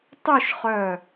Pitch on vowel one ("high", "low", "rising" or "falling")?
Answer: falling